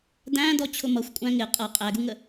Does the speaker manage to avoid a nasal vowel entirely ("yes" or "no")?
no